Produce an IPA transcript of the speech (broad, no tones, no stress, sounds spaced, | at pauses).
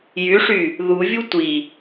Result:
j y ʂ y | ð u vʲ u tʷ i